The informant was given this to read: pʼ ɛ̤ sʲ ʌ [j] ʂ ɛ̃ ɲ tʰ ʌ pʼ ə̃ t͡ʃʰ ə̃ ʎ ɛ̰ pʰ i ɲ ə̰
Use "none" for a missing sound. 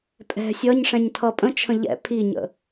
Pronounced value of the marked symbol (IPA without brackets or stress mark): ɲ